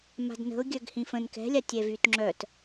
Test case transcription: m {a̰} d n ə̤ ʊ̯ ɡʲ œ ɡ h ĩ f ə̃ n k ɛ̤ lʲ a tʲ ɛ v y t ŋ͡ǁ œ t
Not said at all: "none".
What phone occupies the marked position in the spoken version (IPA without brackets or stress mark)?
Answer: a̤